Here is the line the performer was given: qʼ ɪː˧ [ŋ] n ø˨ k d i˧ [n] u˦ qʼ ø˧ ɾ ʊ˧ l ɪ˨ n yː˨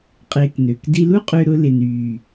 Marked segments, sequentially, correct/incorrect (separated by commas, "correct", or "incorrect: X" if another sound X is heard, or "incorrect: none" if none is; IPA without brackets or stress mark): incorrect: k, incorrect: l